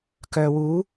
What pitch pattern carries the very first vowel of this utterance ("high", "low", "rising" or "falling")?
low